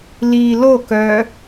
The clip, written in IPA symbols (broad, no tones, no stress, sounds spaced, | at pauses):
l iː l o k œː